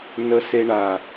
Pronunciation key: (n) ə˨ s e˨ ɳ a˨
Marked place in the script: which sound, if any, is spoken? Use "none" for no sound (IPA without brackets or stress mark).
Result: n